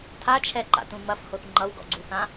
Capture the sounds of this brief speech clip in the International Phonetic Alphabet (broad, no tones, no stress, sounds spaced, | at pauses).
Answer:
tʰ a t͡ʃʰ ɛ ǃ a̰ t ũ m ɐ f h o θ ŋ͡ǃ ʌ w ɡ ɔ̰ ɡ͡ǀ u θ ã